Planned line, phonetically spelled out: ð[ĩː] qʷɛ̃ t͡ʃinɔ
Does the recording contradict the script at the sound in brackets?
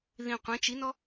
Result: yes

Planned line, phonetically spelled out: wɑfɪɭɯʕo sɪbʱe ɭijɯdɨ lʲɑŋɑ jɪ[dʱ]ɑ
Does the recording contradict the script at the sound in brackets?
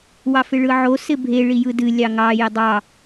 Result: yes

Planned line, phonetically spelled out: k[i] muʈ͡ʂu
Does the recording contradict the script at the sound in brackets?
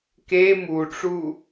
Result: yes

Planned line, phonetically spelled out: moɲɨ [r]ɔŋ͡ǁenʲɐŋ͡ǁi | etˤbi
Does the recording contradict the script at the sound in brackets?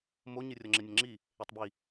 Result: yes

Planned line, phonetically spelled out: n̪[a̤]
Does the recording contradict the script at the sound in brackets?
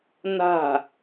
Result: no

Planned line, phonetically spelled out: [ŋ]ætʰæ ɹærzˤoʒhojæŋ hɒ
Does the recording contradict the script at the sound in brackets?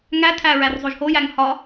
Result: no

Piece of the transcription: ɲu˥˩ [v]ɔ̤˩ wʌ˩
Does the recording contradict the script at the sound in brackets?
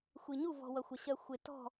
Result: no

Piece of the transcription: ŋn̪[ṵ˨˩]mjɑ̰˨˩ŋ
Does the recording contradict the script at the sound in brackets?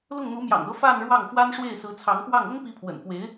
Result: yes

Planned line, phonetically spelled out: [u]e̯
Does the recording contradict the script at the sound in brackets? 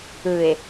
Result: yes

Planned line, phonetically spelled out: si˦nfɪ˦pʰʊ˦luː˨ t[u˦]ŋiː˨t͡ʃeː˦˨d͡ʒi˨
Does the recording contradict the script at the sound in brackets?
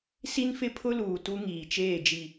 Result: no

